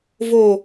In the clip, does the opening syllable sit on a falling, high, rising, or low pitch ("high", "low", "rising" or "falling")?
low